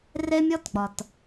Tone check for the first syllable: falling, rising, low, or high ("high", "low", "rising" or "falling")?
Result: high